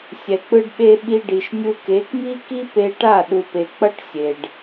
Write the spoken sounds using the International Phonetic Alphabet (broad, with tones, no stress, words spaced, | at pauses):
sʲɛ˨k͡pɯ˧ɖɓe˧ ɓi˧ɖi˨ʃ nʲu˧ke˨˦k mi˦ki˦ pe˧ʈa˦˨ ɗu˨pe˨k͡pʌ˦ʈ sʲe˨ɖ